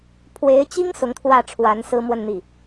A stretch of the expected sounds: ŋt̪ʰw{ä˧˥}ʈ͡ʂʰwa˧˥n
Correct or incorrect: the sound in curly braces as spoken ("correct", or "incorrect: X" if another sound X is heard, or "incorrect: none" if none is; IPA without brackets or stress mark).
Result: incorrect: ä˥˩